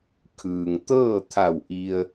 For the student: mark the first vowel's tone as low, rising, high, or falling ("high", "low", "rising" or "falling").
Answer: low